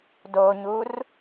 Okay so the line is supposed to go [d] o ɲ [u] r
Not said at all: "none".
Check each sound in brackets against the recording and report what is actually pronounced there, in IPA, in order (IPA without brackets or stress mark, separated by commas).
d, u